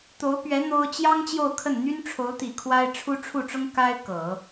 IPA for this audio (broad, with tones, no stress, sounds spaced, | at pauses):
t̪ o˧˥ ʊ̯ p ɥ ɛ˧˥ n̪ o˥ ʊ̯ t͡ɕ j ɑ˥ ŋ t͡ɕ j o˥˧ ʊ̯ kʰ ə˥˩ n n̪ y˥ n ʈ͡ʂʰ o˧˥ ʊ̯ t̪ i˨˩ kʰ w a˥ ɪ̯ ʈ͡ʂʰ u˥ ʈ͡ʂʰ u˥˩ ʈ͡ʂ ʊ˥ ŋ k a˥ ɪ̯ k ɤ˨˩˦